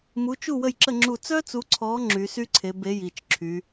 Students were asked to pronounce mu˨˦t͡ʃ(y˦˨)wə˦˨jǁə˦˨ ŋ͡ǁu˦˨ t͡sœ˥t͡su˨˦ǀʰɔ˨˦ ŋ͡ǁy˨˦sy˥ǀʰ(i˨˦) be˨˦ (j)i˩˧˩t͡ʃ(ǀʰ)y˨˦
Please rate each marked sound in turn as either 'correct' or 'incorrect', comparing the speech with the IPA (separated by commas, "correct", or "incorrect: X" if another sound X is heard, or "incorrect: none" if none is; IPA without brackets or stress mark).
incorrect: u˦˨, incorrect: e˨˦, correct, incorrect: ǁʰ